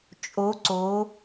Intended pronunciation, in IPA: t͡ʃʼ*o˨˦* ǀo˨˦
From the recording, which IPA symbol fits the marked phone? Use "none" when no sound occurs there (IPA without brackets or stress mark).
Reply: o˨˦